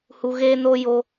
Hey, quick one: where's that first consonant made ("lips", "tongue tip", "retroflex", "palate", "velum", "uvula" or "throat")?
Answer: throat